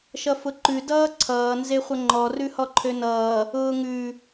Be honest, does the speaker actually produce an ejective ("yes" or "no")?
no